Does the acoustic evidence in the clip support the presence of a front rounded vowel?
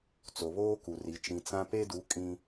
no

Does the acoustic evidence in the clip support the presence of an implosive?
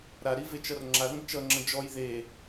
no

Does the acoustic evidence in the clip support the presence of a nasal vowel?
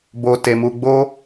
no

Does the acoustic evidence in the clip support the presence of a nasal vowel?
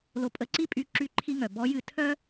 no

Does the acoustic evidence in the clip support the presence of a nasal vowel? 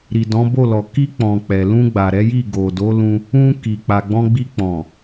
yes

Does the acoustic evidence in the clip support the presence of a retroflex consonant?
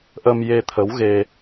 no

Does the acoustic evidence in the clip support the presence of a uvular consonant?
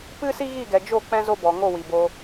no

